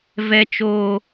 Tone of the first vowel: low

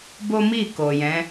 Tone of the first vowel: high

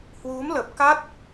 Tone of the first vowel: rising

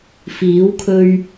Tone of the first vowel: rising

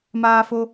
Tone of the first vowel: high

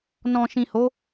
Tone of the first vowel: low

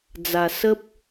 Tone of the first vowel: low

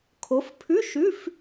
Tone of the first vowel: rising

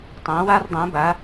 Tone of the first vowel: rising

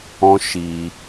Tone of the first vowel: high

